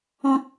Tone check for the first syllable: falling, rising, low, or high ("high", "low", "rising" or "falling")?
high